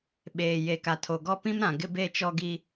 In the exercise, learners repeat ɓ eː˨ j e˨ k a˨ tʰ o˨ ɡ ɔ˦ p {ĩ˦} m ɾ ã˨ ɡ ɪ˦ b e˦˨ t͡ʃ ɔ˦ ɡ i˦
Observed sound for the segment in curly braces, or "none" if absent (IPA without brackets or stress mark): ĩ˦